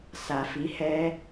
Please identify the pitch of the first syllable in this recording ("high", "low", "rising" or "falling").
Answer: low